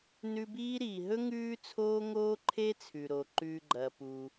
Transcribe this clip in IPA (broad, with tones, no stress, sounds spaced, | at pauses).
n ʉ˦ b iː˥ ɾ iː˨ ɦ ɵ˥ ŋ ʉː˥ t͡sʰ oː˥ ŋ oː˥ ǃʰ e˥ t͡sʰ ʉ˩ ɾ o˩ ǃ ʉ˨ ɡ͡ǃ ɐ˩ p u˩